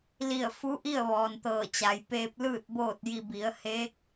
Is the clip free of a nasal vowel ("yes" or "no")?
yes